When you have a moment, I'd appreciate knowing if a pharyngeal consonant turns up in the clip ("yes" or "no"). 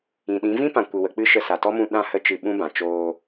no